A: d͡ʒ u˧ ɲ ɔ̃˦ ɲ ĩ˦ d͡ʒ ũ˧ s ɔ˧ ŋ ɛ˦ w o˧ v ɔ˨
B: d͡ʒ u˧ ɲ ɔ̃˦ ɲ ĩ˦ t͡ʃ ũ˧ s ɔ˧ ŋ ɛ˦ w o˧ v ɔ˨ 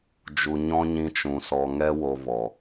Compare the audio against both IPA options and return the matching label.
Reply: B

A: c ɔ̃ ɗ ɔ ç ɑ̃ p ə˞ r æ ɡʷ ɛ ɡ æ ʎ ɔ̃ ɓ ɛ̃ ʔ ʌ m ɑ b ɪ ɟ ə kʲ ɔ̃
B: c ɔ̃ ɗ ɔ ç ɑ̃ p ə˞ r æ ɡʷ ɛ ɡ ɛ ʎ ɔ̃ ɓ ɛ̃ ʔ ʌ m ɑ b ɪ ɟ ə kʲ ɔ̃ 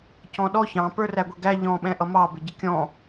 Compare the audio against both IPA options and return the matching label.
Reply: A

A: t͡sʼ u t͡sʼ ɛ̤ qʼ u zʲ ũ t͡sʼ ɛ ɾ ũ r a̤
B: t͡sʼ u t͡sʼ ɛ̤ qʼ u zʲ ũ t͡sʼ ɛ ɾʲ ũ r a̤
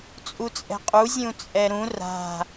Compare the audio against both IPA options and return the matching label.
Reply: A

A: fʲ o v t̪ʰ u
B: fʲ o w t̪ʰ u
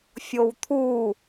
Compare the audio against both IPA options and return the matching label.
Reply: B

